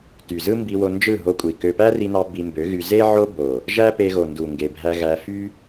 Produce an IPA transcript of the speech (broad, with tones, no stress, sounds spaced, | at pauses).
t y˨ z ɯ˦ m b i˧ w o˧ n d͡ʒ ɯ˦˨ ɦ o˧ kʷʼ i˨ k ø˧ p æ˦ r i˧ n ɑ˧ b i˧ m b ø˨˦ ɣ y˧ z e˦ ʕ o˦ b o˨ | ʒ æ˦ p e˧ ɣ o˨ n d u˨ ŋ ɡ e˨ bʱ æ˧ ɣ æ˧ f y˦